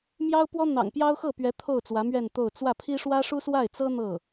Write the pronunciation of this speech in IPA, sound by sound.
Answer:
m j ɑ˥ ʊ̯ p w ɔ˥ n̪ ɑ̰˨˩ ŋ p j ɑ˥ ʊ̯ x ɤ˥˩ p ɥ ɛ˧˥ t̪ʰ o˥˩ ʊ̯ t͡s w ä˧˥ m ɥ ɛ˥˧ n t̪ o˥˧ ʊ̯ t͡s w ä˥˩ pʰ i˥ ʂ w ä˥ ʂ u˥ s w a˥˩ ɪ̯ t͡s ɤ˥ n̪ ɤ˥˩

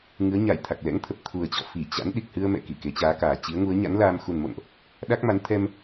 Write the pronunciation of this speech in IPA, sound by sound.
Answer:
ŋ ɨ˨˦ ə̯ ɲ a˧˩ j t̪ʰ a˨˩ k̚ l ɛ̰˧˥ ŋ t̪ʰ ə˨˩ p̚ t̪ʰ u˨˩ ə̯ t͡ɕ ɔ̰˧˨ f i˧˩ t͡ɕ a̰˧˥ n ɗ i˨˩ k̚ h ɨ˧ ə̯ m ɛ̰˧˨ k i˧˩ k e˨˦ t͡ɕ aː˨˦ k aː˨˩ t͡ɕ i˨˦ ə̯ ŋ u˨˦ ə̯ ɲ a̰˧˥ n l aː˧ m x u˨˩ n m o̰˧˨ n ʔ | ɗ a˦˥ k̚ m a˨˦ n t̪ʰ ɛ˧ m

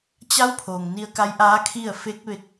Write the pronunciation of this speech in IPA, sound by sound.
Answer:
t͡ɕ a˧˥ w pʰ oː˩ ŋ n i˧ ə̯ k a˧˥ j ʔ aː˧˥ kʰ i˥˨ ə̯ f e˧˥ k̚ ʋ e˧ k̚

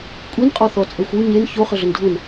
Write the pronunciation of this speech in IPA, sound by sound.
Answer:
kʷʼ i n qʼ ɔ θ ɔ t͡sʼ e xʷ u ɲ e n ç o χ ə ɮ ə n dʱ u n

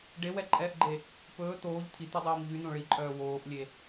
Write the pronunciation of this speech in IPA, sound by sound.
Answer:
ɖ e w ɛ ǃʼ ɛː ʔ ɡ͡ǃ e | p ɵː t̪ oː ʎ t̪ʰ i t̪ u dˤ oː m ʎ y n̪ õ ɭ i ǃʼ œː w oː ʔ lʲ e

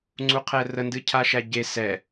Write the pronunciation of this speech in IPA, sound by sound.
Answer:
ŋ͡ǀ u qʰ ɛ r ə n d ɨ cʰ a ʃ æ ɟ e s ɛ

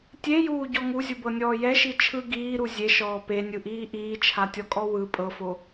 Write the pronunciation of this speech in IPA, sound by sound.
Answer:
tʲ e j uː ɟ ɔ ŋ u zʲ u b ɤ nʲ ɔː j ɛ ʃ i t͡ʃʰ ɯ ɡ iː ɾ u zʲ e ʃ ɔː p e nʲ ɯ ʔ iː ʔ iː t͡ʃʰ a tʲ ɔ kʼ ɔ w ɯ pʼ ɤ f o

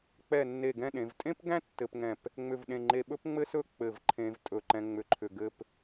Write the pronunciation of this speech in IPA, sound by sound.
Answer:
k͡p ɛ˧˩ nː e˧˩ ɡ ɛ̃˥˧ ɗ ẽ˩˧ v tʼ ẽ˥ p ɡ æ̃˥ tː ɘ˧ p ŋ ɛ̃˧˩ p | ŋ͡m ʏ˧˩ v ɗ ẽ˧˩ ŋ͡ǃ e˧ ɓ ɵ˥ p ŋ͡m ɘ˥ s ɵ˥ k͡p ɘ˧˩ v ǃʰ ẽ˧ v tʼ ɵ˧˩ ǃ ɛ̃˧ ŋ͡m ʏ˧ ǃʰ ʏ˧˩ ɡ ɘ˥˧ p

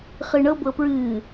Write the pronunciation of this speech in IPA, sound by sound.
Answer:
χ ɨ ɳ ɤ b ɤ p ɹ ɨː

